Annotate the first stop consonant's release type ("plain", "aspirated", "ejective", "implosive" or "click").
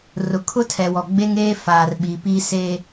aspirated